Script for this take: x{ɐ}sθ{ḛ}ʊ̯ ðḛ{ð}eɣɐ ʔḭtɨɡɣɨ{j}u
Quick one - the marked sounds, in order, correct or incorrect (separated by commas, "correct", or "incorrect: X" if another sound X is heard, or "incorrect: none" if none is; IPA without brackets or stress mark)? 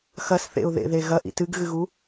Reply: correct, correct, correct, incorrect: ɣ